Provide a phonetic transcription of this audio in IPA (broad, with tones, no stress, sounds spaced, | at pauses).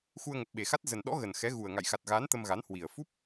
x u˧ ə̯ ŋ ə˨˩ p̚ ɓ e˨˩ x a˦˥ t̚ z ə˨˩ n ɗ ɔ̰˧˥ ɣ ə˨˩ n x ɛ˨˦ ɣ u˨˩ ə̯ ŋ a̰˧˨ j x a˨˩ t̚ ɣ aː˨˦ n t̪ ə˧ m ɣ a˨˦ n h w i˨˩ ə̯ f u˦˥ p̚